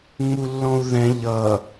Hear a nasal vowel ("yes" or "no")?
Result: yes